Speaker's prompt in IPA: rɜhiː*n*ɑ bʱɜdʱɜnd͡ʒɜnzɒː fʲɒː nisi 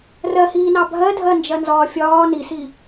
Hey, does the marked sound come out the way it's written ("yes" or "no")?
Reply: yes